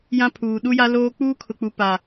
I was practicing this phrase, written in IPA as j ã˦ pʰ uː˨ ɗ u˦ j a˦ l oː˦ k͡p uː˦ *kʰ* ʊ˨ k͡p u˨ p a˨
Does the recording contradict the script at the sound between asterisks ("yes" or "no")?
no